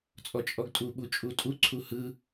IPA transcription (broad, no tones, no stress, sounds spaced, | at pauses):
t͡sʼ ɔ t͡ʃʼ ɔ ɡ tʼ u ɓ u t͡ʃʼ u tʼ u ǀʰ u h ɯ